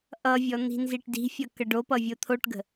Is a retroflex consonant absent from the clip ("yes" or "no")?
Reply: no